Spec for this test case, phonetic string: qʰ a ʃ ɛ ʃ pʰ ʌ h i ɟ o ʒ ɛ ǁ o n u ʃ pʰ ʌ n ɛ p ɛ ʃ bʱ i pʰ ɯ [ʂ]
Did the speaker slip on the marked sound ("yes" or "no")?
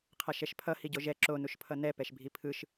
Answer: yes